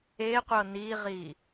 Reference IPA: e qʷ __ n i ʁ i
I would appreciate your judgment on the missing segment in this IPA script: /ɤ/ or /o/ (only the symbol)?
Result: ɤ